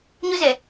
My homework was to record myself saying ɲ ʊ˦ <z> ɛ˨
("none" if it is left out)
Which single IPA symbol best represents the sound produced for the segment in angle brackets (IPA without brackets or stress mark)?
z